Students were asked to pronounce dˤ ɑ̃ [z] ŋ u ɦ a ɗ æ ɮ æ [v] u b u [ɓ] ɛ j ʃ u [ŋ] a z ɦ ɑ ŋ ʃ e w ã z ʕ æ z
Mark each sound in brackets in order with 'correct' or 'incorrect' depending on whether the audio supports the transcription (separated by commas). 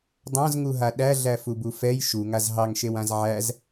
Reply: correct, incorrect, incorrect, correct